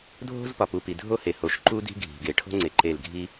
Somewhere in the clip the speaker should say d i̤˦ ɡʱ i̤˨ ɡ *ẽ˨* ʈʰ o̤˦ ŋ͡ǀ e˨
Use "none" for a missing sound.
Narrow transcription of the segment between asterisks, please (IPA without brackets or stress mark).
e˨